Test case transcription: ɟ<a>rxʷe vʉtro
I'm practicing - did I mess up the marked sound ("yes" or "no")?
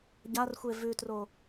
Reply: no